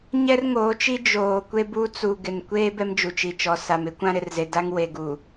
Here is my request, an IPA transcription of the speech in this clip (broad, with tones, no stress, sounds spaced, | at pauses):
ɲ ɛ˦ r ŋ oː˨˦ t͡ʃ i˦ d͡ʒ oː˨ kʷ e˦ b u˦ t͡s u˨ ɡ ɪ˨ n kʷ eː˦ b ɛ˦ m d͡ʒ u˨ t͡ʃ i˨ t͡ʃ ɔ˨ s a˨ m ɪ˦ kʷ ã˦ ɾ ɪ˨ r z e˨ d a˦ ŋ w e˨ ɡ u˨